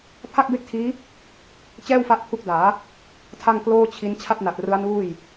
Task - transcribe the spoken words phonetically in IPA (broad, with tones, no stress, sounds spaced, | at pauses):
pʰ a˥˩ k̚ b e˥˩ k̚ tʰ iː˦˥ | t͡ɕ ɛː˥˩ w f a˦˥ ʔ pʰ u˦˥ k̚ d aː˩˦ | tʰ a˥˩ ŋ k l oː˥˩ t͡ɕʰ i˦˥ n t͡ɕʰ a˥˩ p̚ n a˨˩ t̚ r ɯ˦˥ a̯ n uː˥˩ j